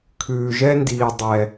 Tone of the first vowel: low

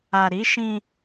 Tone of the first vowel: low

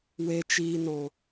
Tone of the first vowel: low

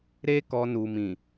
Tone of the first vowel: high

